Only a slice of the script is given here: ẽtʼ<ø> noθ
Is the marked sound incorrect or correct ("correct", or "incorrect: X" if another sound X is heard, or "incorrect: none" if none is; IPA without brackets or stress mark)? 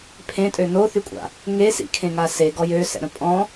correct